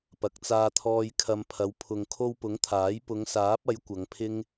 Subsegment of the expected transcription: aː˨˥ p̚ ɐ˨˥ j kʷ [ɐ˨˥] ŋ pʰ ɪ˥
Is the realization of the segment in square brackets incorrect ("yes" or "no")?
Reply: yes